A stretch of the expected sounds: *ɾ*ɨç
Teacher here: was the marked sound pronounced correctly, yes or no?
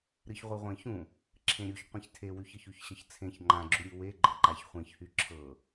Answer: yes